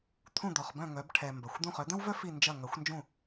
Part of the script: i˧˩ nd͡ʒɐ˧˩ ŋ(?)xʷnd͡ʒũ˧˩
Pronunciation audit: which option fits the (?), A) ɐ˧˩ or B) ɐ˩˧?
B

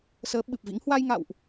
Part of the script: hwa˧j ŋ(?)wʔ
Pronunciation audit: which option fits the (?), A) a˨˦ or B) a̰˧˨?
B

